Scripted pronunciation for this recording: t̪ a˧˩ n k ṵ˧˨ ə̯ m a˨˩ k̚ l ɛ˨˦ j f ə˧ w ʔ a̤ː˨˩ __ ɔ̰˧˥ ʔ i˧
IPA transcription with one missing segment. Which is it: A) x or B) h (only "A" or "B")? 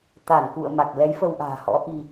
B